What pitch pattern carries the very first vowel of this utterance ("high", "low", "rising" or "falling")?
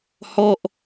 falling